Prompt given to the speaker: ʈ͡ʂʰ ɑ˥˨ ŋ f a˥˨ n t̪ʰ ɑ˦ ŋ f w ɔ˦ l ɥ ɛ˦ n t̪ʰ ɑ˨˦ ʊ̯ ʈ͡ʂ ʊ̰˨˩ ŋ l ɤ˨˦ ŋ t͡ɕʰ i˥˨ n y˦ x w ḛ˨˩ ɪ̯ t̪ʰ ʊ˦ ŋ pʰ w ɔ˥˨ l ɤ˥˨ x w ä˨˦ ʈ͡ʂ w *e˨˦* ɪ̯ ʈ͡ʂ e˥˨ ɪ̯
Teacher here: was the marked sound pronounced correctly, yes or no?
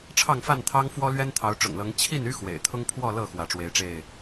yes